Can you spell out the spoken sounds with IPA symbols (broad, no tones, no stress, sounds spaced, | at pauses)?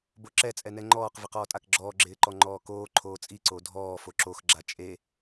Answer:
b o ǁ ɛ t͡sʼ ɛ n ɛ ŋ͡ǃ ɔː q v ɪ q ɔː tʼ a k ɡ͡ǁ ɔː ɡ͡ǁ ɪː ǃ ɔ ŋ͡ǃ ɔː k oː ǃʰ oː t͡sʼ i ǀ o dʱ ɔː f o ǁ o x ɡ͡ǁ a t͡ʃʼ e